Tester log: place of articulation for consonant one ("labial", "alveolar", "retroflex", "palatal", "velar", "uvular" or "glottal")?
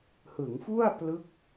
glottal